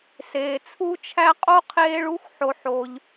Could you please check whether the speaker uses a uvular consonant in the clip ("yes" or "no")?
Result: yes